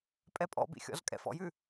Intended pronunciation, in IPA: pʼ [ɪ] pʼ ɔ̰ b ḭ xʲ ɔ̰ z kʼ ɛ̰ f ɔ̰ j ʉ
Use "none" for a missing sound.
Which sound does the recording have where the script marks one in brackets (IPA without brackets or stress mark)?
ɛ